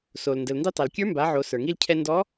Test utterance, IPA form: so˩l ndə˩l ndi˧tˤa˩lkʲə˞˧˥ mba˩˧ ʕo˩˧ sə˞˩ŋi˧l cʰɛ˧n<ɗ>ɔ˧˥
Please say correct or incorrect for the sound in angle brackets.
incorrect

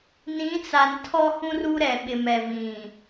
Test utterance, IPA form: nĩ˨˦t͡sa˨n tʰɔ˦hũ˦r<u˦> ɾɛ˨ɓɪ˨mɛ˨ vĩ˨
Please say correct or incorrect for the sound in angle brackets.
correct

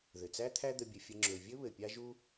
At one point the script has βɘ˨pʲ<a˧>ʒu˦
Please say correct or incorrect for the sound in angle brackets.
incorrect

